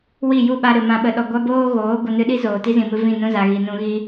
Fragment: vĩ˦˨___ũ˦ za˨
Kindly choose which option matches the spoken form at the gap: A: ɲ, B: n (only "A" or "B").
B